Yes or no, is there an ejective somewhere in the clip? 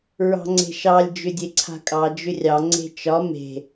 yes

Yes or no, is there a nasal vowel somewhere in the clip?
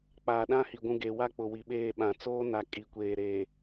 yes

